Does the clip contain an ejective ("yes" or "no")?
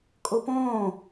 yes